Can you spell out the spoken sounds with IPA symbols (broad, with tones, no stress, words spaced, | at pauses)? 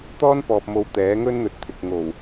t̪ɔː˥npɔː˨p̚mo˨˧w t̪ɛː˨˥ŋɵ˥nn̪ɵ˨˥t̚ t̪ʰɪ˨k̚ŋo˨˩w